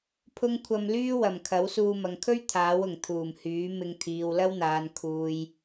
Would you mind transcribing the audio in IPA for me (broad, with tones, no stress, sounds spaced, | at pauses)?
pʰ ʊ˥ ŋ kʷʰ ɐ˧ m l yː˥ w ɐ˨˩ m kʰ ɐ˨˥ w s uː˧ m ɐ˨ ŋ kʰ ɵ˥ ɥ t̪ʰ aː˨˥ w ʊ˨˩ ŋ t̪ʰ uː˨˩ m h yː˨˥ m ɪ˧ ŋ t̪ʰ iː˨ w l ɐ˥ w n̪ aː˨ n kʰ uː˨ j